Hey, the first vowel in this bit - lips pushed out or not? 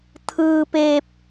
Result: no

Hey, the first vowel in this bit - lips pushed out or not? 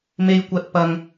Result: no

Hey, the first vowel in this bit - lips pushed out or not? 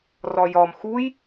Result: yes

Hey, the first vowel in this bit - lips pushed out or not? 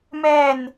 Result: no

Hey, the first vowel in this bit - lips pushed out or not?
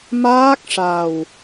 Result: no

